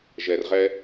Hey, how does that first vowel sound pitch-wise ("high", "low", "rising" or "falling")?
low